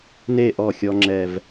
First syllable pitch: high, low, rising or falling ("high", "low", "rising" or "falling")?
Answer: falling